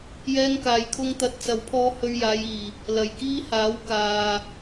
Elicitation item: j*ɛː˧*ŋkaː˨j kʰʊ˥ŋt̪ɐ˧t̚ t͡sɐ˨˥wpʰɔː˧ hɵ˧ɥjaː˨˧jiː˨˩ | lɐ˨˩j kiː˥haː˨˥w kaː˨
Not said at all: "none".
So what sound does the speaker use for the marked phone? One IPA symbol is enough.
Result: ɛː˧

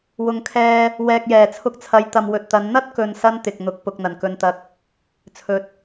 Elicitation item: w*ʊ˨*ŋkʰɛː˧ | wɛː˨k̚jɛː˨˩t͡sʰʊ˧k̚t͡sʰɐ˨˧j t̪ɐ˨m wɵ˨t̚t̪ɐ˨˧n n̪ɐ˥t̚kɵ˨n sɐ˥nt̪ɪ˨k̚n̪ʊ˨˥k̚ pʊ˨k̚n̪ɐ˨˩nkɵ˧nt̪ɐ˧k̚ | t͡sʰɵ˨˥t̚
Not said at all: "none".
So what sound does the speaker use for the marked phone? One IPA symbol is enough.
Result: ʊ˨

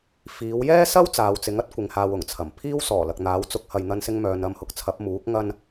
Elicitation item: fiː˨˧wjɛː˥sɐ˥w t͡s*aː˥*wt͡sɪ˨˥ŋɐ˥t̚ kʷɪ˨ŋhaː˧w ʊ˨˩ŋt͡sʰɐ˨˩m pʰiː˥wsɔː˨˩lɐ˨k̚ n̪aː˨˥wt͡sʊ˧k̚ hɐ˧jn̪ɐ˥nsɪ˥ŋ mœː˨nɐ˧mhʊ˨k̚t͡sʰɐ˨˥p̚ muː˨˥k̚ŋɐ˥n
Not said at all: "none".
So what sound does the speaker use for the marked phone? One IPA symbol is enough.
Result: aː˨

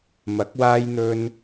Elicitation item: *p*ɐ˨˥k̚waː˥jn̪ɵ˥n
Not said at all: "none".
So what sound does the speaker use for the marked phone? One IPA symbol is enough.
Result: m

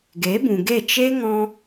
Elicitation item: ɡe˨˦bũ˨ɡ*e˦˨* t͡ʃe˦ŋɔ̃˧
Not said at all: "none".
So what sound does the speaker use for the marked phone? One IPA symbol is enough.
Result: e˦˨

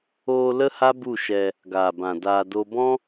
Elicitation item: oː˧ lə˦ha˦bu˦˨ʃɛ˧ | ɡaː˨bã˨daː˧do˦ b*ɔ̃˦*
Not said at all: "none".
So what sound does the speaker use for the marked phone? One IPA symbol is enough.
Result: ɔ̃˦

